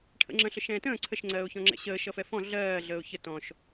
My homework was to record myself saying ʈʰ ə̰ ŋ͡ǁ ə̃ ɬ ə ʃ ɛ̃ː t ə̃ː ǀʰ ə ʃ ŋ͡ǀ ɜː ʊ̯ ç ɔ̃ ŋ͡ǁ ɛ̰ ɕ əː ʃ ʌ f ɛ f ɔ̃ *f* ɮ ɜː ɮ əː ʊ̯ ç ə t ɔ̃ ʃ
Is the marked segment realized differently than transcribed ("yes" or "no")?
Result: yes